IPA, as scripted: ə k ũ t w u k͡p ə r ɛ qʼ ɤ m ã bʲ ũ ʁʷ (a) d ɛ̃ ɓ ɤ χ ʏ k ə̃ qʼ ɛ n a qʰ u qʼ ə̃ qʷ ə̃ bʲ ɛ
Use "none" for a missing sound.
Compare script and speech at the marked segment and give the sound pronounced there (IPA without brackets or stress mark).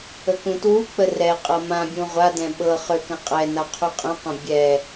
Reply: a